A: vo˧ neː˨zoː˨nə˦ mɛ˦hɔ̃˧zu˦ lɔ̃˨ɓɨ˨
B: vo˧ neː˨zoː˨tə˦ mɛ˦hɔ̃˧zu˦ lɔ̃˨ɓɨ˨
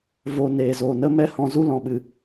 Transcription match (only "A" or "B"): A